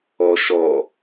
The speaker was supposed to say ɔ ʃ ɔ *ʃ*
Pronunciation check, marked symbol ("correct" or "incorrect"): incorrect